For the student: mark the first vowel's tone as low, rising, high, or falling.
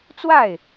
falling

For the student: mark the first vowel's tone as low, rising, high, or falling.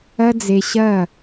high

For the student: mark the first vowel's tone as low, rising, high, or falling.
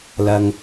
low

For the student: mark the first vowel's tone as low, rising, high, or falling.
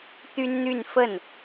high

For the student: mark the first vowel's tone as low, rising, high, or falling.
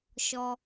low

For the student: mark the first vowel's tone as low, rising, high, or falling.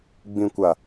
low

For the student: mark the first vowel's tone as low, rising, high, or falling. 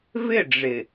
falling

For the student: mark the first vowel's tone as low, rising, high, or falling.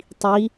rising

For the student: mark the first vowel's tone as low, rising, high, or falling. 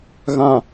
low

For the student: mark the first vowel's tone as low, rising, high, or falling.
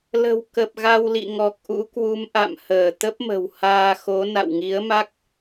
low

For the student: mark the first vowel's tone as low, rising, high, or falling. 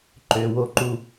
low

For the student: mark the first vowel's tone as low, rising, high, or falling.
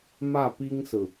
falling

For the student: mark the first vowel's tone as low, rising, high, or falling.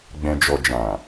low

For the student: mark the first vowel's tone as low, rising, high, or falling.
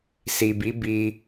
low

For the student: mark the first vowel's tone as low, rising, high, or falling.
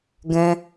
high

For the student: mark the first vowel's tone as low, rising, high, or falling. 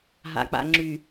low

